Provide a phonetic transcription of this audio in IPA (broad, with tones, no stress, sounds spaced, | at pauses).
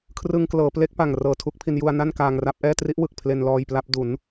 kʰ r ɯ˧ ŋ k l ɤː˩˦ p l e˦˥ k̚ p a˨˩ ŋ r ɤː˨˩ tʰ u˦˥ k̚ pʰ i˧ n j u˧ a̯ n a˥˩ n k aː˧ ŋ r a˥˩ p̚ ʔ ɛː˥˩ t r i˦˥ ʔ w ɯ˨˩ k̚ pʰ l e˧ n l ɔː˧ j p l a˦˥ p̚ d u˩˦ n